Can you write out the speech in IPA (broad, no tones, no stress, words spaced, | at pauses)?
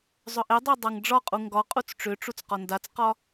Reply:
zˤʏʔedˤe dˤaŋɖ͡ʐɒqʼu ŋɡɒqʼut͡s ʈ͡ʂʏʈ͡ʂut͡s qɒndat͡sqɒ